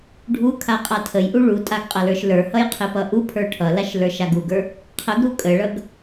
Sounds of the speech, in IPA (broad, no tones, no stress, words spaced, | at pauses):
ɖʱukʰa qʼatʰəjʔu ɭutʼaɡ qʼʌlə˞ʃlə˞hʌj qʰepʌʔupʰə˞ ʈʰʌlaʃ lə˞ʃaɡuɡə˞ | qʰəɡɾu kʼəɭʌɡ